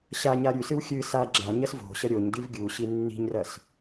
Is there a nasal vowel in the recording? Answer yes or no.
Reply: yes